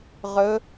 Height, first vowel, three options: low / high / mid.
mid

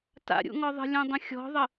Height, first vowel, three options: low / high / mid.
low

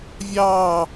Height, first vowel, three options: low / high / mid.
low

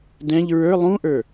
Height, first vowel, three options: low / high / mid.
mid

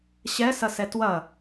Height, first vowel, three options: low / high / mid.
mid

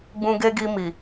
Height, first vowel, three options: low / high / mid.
high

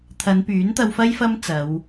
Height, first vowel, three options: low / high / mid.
low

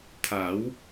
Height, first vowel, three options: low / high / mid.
low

